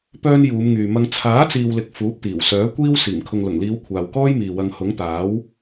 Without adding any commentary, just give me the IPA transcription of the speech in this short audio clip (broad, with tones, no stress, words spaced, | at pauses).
pœː˧n juː˨˧mŋyː˨mɐ˧ŋ t͡sʰaː˨˥t͡siː˨wlɪ˨k̚ fuː˨˥p̚t̪iː˨˩wsœː˨˥ kʷiː˧w siː˨˩mkʰʊ˨ŋlʊ˨˩ŋliː˨˧w kʷʰaː˨wkɔː˥jmiː˨ wɐ˨ŋhʊ˨˥ŋt̪aː˨˥w